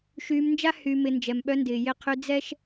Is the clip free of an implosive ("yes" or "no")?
no